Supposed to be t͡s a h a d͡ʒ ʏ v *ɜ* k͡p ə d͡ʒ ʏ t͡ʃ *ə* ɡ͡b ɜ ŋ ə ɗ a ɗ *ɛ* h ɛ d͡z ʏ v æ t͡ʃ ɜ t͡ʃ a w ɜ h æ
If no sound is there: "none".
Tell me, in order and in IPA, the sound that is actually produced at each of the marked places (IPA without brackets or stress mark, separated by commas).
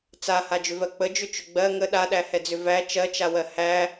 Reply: ɜ, ʏ, æ